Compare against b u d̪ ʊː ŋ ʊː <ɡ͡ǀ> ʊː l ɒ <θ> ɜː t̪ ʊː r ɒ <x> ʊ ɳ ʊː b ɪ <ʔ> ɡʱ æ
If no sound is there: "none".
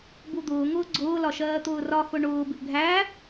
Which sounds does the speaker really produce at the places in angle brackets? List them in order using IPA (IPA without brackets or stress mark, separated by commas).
ɡ͡ǀ, ʃ, x, ʔ